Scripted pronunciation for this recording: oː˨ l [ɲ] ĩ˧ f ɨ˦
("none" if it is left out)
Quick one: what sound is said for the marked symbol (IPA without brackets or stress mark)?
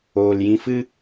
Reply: j